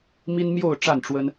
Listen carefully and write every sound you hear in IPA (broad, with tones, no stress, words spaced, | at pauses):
mi˦nmjo˥˨ʊ̯ ʈ͡ʂa˥˨nʈ͡ʂwə˦n